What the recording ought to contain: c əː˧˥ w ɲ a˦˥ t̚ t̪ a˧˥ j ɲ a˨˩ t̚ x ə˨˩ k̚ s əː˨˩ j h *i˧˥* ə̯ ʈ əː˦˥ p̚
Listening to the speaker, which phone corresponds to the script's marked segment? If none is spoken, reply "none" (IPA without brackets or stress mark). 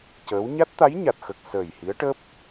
i˧˥